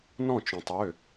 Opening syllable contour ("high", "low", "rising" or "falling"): falling